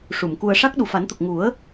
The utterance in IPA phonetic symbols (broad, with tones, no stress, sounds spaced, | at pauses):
ʂ u˨˩˨ m k u˧ ə̯ ʂ a˦˥ k̚ ɗ u˨˩ f a˨˩˦ n t̪ ə˨˩ k̚ ŋ u˨˩˦ ə̯